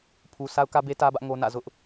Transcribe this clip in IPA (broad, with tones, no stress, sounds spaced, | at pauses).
pʰ u˨ sʰ a˦ ʊ̯ k ä˦ b e˦ t ä˦ b ä˦ ʔ ŋ o˦ n ä̰˦˨ z ʊ˦ ʔ